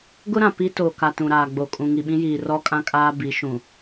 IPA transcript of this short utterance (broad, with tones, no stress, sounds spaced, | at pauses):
ɡ ʊ˦ ɾ ã˨ p i˦ t o˨ k a˨ t ũ˨ ɾ aː˨ ɡ͡b o˨ kʼ ũ˨ ŋ i˨ ɓ ĩ˦ j iː˨ r ɔ˦ kʼ ã˦ kʼ aː˦ b i˨˦ ʃ ũ˨